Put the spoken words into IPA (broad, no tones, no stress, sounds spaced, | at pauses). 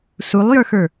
s u lˠ j ə˞ x ə˞